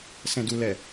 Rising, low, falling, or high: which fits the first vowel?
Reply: low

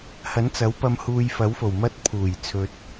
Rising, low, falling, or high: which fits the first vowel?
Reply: rising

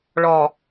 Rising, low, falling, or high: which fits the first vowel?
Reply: low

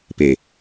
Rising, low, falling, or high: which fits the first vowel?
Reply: low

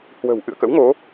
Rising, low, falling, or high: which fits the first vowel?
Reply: low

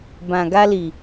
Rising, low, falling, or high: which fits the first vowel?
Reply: low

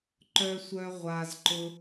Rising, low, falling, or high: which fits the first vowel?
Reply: high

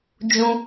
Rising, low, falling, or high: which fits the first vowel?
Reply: high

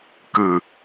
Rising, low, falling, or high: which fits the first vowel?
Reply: low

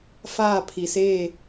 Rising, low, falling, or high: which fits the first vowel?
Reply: falling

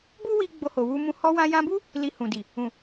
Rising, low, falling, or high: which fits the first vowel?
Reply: high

